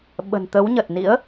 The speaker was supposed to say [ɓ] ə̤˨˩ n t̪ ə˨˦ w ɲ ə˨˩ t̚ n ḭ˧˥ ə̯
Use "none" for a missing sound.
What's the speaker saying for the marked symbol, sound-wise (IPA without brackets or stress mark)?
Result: ɓ